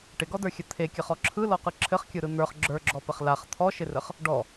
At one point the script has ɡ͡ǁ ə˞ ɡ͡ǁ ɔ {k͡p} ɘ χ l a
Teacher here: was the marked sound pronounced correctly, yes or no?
no